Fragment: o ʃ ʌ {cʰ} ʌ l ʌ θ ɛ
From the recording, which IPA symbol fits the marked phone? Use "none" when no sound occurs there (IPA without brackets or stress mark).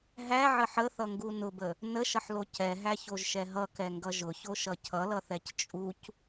cʰ